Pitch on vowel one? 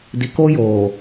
low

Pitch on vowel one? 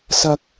high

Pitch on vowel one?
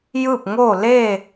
falling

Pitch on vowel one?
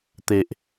low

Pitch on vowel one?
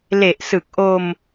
low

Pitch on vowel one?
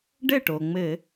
falling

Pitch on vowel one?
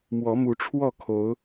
rising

